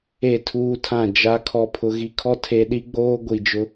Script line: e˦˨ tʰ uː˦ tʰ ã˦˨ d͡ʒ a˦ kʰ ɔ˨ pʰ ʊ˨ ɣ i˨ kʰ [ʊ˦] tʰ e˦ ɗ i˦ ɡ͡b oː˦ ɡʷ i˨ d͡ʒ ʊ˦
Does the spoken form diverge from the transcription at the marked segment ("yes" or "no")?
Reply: yes